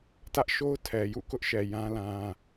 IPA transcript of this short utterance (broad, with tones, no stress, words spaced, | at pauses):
tä˦ʔʃo˦ʊ̯ tʰɛ˨jṵ˦˨kʊ˦ʔʃɛ˨ jã˦lã˦